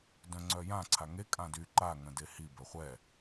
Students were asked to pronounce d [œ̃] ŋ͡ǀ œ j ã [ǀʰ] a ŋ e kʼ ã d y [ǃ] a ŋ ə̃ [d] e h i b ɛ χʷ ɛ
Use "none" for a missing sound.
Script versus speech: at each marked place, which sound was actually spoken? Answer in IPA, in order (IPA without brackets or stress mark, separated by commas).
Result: œ̃, ǀʰ, ǃ, d